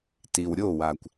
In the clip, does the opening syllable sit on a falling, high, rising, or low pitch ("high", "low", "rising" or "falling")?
low